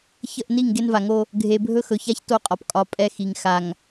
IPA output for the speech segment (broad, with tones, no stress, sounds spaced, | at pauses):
ç ə˦˨ ʔ n i˦˨ ŋ ɡ e˦ n v a˨ ŋ o˦ | ɡʱ e˨ bʱ ɵ˦ x ɵ˨ ç a˦ ç t o˦˨ qʼ ɒ˨ p kʼ ɒ˨ pʼ ɛ˦ x i˨ ŋ x a˨ ŋ